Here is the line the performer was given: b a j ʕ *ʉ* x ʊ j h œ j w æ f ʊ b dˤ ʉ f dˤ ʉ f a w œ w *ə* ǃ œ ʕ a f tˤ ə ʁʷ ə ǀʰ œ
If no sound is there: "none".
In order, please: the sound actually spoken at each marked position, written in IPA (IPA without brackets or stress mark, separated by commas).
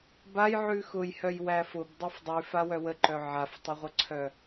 ʉ, ə